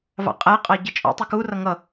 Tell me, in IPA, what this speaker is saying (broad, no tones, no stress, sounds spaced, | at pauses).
v ɑ̰ qʼ æ qʼ ɑ ɟ ə t͡ʃʼ ɔ̰ tˤ ɪ k u r ʌ ŋ ʌ